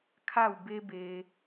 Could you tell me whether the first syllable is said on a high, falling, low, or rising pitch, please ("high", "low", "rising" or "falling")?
falling